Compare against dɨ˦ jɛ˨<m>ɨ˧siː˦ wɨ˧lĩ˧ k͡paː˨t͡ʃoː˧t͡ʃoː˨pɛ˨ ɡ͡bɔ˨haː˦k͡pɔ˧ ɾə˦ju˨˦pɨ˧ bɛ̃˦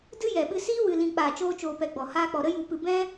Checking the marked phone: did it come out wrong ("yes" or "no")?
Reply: yes